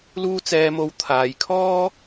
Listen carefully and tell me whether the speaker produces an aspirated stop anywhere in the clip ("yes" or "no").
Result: yes